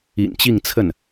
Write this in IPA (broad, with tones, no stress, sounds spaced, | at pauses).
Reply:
ḭ˨˩ n t͡ɕ i˥˧ ŋ t͡sʰ ə˥˩ n